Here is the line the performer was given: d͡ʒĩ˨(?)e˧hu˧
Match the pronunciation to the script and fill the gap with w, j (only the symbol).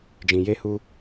j